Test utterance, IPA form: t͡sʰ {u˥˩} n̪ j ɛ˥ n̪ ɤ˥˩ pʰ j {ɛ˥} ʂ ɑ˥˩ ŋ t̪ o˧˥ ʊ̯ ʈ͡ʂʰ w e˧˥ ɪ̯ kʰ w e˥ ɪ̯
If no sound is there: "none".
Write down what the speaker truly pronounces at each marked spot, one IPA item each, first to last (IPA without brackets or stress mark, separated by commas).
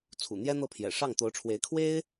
ṵ˨˩, ɛ̰˨˩